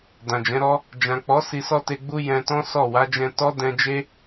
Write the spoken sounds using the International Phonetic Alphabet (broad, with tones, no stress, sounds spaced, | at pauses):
d ã˨ d͡ʒ ɛ̃˨˦ ɾ ɔ˦ | d͡ʒ ã˨ k͡p ɔ˨˦ s i˧ s ɔ˦ t e˧ ɡ͡b u˦ j ɛ̃˧ t ɔ̃˦ s ɔ˦˨ w a˨˦ d͡ʒ ɛ̃˧ t ɔ˦ d ɛ̃˧ d͡ʒ e˦